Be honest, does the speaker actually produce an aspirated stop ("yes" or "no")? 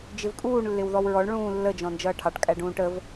yes